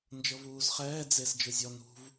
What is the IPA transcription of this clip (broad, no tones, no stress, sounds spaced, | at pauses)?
n d͡ʒ ɤ v uː z χ ɛː d͡z e s d͡ʒ ɯ zʲ ɔ n ṳ v